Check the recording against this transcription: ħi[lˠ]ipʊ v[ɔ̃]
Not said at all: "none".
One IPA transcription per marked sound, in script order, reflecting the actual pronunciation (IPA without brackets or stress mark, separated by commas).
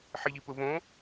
ʎ, õ